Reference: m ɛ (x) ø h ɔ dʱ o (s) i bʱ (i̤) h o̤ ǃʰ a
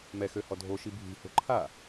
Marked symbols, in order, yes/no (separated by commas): yes, no, yes